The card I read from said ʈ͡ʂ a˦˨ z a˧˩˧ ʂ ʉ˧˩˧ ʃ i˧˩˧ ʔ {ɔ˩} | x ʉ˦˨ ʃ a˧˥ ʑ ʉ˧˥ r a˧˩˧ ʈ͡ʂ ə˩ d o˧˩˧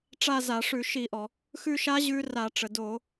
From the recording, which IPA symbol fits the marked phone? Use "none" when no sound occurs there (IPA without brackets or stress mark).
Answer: ɔ˩